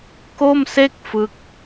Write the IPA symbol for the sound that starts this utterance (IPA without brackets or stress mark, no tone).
k